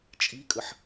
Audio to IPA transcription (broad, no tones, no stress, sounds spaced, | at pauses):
t͡ʃʼ i kʼ ə ħ